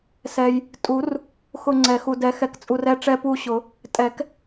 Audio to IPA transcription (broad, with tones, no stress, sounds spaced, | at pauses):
s ɛ˨ j | tʼ u˨˩˦ r | x ʊ˦˨ ŋ͡ǀ ɛ˨˩˦ x u˨ d ɛ˨ x ɛ˨ k t͡sʼ u˨ r ɛ˦˨ ʈ͡ʂ ɛ˦˨ p u˦˨ ɕ ʊ˨˩˦ | tʼ ɛ˨˩˦ k